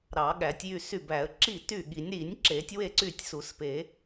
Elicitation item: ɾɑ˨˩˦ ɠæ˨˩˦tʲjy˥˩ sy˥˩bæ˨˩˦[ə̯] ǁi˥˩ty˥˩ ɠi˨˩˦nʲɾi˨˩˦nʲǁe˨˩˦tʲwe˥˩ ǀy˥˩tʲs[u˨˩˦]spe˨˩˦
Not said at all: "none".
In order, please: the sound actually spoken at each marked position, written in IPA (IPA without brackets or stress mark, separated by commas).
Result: ə̯, u˨˩˦